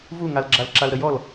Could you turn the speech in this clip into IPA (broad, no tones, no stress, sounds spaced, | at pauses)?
v u ŋ a l ɡ͡ǁ a l ǁ a l ɾ ə j ɔ l